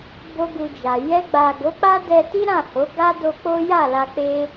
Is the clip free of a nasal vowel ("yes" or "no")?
no